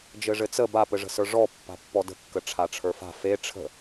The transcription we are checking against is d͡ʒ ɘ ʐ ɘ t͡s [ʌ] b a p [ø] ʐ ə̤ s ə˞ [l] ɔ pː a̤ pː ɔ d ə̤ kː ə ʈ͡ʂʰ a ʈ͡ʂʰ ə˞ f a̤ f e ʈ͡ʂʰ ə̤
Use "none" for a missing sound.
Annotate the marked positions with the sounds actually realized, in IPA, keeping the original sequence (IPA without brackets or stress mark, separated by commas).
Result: ə, ɘ, ʐ